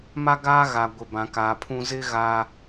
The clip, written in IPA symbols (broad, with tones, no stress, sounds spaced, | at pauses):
m a˦ ɡ aː˦ ɣ a˨ ɡʷ ɪ˨ b ã˨ k aː˨ pʰ ũ˦ z ɪ˦ ɣ aː˦